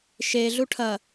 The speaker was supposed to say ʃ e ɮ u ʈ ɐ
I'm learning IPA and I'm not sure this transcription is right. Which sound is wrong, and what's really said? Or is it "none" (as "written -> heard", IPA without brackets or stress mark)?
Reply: ʈ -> ʈʰ